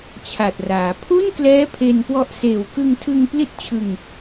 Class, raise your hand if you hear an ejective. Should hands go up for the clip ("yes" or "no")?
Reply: no